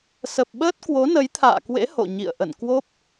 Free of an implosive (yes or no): no